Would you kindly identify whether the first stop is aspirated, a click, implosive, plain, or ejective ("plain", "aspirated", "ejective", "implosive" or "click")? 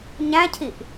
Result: aspirated